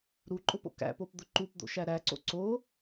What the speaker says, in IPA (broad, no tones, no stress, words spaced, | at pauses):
ɾuǃʼʊ po̰kæ̰pop d̪ʊǃupd̪o̰ ʃæɾæǀo̰ ǀo